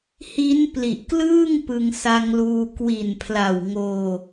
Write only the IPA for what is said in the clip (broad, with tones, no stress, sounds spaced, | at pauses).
h i˦˥ n p l i˨˩ ʔ k l ɯː˥˩ ŋ p ɯ˧ ŋ s a˧ ŋ l uː˧ k w i˨˩ n pʰ l a˨˩ w ŋ oː˧